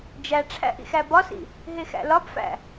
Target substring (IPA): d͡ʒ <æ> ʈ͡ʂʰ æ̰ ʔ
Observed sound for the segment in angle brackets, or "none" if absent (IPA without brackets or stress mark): æ